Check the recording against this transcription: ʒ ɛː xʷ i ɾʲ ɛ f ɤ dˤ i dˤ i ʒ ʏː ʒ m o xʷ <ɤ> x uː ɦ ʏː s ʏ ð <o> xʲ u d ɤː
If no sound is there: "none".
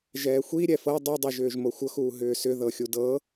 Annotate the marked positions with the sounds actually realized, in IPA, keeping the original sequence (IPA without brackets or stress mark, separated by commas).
ɤ, ɤ